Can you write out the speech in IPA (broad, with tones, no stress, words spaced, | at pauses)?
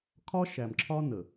kʰɒ˦ʃæ˨mǁʰɒ˦nə˨